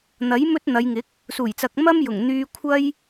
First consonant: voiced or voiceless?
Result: voiced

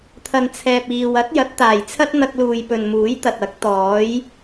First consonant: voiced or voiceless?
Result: voiceless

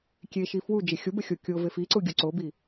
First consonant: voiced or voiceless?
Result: voiceless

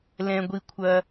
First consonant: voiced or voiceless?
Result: voiced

